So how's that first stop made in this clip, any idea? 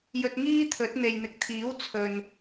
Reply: plain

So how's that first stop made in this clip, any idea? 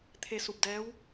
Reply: aspirated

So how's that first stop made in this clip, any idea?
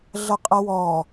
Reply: ejective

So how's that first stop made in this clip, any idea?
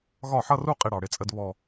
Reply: ejective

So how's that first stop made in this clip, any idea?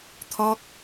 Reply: aspirated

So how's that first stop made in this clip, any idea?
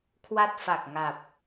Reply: aspirated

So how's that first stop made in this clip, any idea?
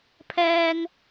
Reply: aspirated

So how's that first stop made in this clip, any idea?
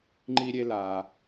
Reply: click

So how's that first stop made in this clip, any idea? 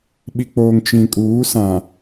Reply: implosive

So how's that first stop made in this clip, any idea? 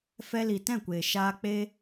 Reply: plain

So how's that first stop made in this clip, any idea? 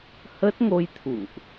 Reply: plain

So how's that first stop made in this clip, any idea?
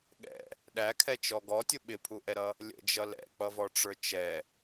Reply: implosive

